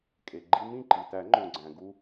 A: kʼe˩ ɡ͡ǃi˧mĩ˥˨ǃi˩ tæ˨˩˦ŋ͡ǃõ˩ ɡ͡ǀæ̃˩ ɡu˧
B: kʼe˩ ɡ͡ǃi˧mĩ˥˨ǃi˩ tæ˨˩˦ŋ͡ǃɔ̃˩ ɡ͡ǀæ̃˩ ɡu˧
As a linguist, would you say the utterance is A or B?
A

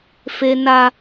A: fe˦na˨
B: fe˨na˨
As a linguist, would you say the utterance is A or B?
B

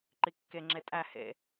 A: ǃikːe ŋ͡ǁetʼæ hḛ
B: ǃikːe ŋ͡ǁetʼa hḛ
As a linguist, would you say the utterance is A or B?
A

